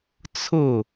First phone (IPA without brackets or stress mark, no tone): t͡sʰ